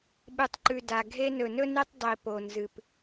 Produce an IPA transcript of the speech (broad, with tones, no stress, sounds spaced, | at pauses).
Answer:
ɓ ɨ˨ tˤ ǃ ʉ˨ d a˨ ɡʱ e˦ n ɵ˨ n ɵ˦ n i˦ tˤ dˤ i˨ p o˨ n z ɨ˨ p